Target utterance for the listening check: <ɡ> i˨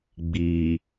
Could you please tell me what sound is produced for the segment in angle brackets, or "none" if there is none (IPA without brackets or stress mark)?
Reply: ɡ͡b